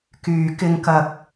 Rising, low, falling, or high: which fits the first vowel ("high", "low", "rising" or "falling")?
low